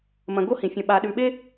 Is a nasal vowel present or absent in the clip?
present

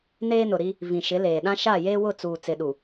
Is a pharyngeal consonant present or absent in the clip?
absent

